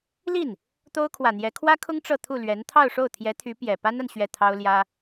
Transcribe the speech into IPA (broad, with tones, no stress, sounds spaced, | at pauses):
l i˥˩ n | t̪ o˥ ʊ̯ kʰ w ä˨˩ n̪ j ɛ˧˥ kʰ w ä˥ kʰ ʊ˥ ŋ ʈ͡ʂ ɤ˥˧ t̪ʰ u˥˩ l ɥ ɛ˧˥ n t̪ʰ ɑ˥˧ ʊ̯ ʂ o˥˩ ʊ̯ t̪ʰ j ɛ˧˥ t̪ʰ y˧˥ p j ɛ˨˩ p a˥ n a˨ n ɕ ɥ ɛ˥˩ t̪ʰ ɑ˥ ʊ̯ l j ä˥